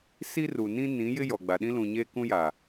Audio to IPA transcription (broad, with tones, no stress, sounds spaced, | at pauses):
s i˦ r u˨ n ĩ˦ n ĩ˨˦ j ɪ˦ j ɔ˨ ɡ͡b a˨ ɗ ĩ˦ l ũ˨ ɲ eː˦ k ũ˦ j a˨